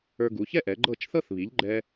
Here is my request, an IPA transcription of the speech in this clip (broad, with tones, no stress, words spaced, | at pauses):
ə˞˧ɡu˩˥çɛ˥ʔɛ˩˥ ɡ͡ǃɤ˥˩t͡ʃθɤ˥θ βi˩˥ʎɡ͡ǃɛ˧